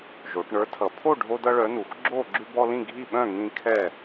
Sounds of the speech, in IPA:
ʒ o˩˧ ʈ ɳ ə˞˨˥ tʰ ʌ˩˧ pʰ o˥˨ ɖʱ o˦ d ʌ˦ ɭ œ˨˥ n u˩˧ x ɡ͡ǁ o˥˨ ɡ͡ǁ ʉ˦ b ɔ˦ l ĩ˥˨ ɡʱ i˥˨ ɓ œ̃˥˨ ŋ ĩ˦ kʰ ɛ˥˨

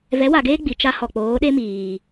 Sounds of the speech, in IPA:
v ɛ˨˦ w a˨ ɡ eː˦ ɡ͡b i˨ t͡ʃ a˦ h ɔ˨ k͡p oː˨˦ ɗ e˦ m iː˨

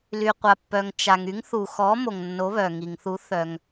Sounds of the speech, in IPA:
l y˩ qʷ a˩ pː œ˩ ŋ t͡ʃ a˩ ŋ y˨˥ ŋ θ u˩ x ɔ˨˥ m o˩ ŋ nː o˨˥ β œ˩ ŋ i˩ ŋ θ u˨˥ θ œ˩ ŋ

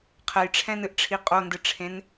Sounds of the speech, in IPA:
qʰ ɛ j ʈ͡ʂʰ ɛ̃ n ɨ ʔ ʈ͡ʂʰ i qʼ o n d ɨ ʈ͡ʂʰ ẽ n

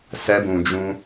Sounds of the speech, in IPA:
s ɛ˧ b ũ˨ d͡ʒ ũ˧

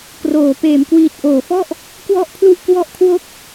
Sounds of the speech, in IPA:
k r oː˩˦ p eː˩˦ m k w iː˨˩ t̚ ʔ oː˩˦ f ɔ˥˩ ʔ | k w ɔ˥˩ ʔ pʰ l u˥˩ ʔ k w ɔ˥˩ ʔ kʰ w o˥˩ k̚

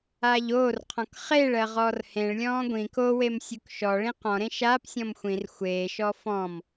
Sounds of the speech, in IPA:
aː ʎ oː r qʰ ɔ̃ k χ e ɭ ɜ ʁ ɔː r h ẽ ɭ lʲ ɔ̃ː ɡʷ ĩ k o w e m sʲ u k ʃ ɔ ɭ ĩ q ɔ̃ ɾ ẽ ʃ aː p sʲ ɔ̃ m xʷ ĩ r xʷ eː ʃ ɔ f ɔ̃ m

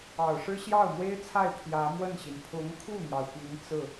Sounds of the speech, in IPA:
ɑ˨˩ ʊ̯ ʂ ɻ̩˥ ɕ j ɑ˥˩ ʊ̯ m w e˥ ɪ̯ t͡sʰ a˥˩ ɪ̯ pʰ j ä˧˥ m w ə˥˩ n ɕ i˩ n pʰ ʊ˧˥ ŋ kʰ u˥˩ n̪ j ɑ˩ ʊ̯ p i˧˥ ŋ t͡s ɹ̩˥˩

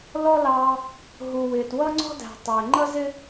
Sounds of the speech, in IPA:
l ɔ˥ l ɑː˦ | ɦ u˨ w ɪː˨ t w ʌ˥ ŋ͡ǀ ɔ̤˥ d æ̤˨ tˤ ɪː˨ ŋ͡ǃ ʌ˥ z ɪ˥

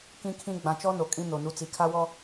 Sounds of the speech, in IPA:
k ĩ˨ kʰ ĩ˨ ɡ͡b ã˨ t͡ʃ ɔ˦ n o˨ kʼ ĩ˦ n o˨ n u˨ t͡s i˨ kʰ a˦ w ɔ˦

